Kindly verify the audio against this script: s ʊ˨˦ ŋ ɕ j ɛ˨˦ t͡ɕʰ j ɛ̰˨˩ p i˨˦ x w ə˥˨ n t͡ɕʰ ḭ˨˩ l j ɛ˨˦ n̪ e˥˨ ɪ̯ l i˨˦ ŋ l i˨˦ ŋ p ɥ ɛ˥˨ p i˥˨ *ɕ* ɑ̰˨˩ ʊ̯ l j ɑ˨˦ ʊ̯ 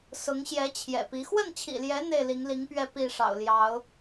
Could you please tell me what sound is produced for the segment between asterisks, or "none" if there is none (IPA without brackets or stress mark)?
ʂ